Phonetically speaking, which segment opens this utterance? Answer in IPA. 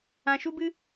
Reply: ã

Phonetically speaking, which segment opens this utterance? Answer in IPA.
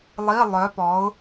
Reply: lˠ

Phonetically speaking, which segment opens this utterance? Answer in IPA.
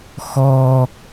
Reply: x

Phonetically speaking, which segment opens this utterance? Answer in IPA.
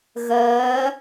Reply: ɣ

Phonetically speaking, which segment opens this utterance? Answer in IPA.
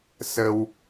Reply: s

